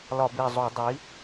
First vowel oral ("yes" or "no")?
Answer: yes